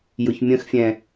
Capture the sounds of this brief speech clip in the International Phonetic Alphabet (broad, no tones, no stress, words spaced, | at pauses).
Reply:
jʊçmʲə̃xfʲɛ̃